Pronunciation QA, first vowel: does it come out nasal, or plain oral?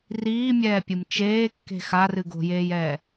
oral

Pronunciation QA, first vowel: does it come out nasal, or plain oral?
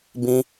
nasal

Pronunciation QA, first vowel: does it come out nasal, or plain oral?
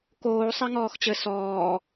oral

